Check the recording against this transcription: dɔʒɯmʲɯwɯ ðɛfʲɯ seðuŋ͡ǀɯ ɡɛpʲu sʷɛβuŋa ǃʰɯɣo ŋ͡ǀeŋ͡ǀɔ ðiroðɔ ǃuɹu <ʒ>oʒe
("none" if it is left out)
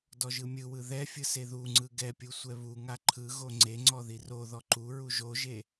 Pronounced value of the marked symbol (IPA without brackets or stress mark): ʒ